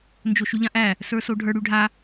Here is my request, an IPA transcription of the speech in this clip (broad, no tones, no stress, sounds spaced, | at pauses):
n d͡ʒ o ʃ y ʎ ã ʔ æ | s ə˞ s o ɖʱ ə˞ ɽ y ɖʱ a